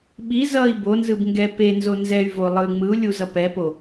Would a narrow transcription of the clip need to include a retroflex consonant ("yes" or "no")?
no